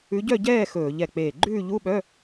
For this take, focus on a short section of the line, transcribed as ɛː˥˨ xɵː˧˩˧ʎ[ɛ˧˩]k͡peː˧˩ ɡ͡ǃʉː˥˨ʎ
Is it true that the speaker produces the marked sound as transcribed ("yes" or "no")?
yes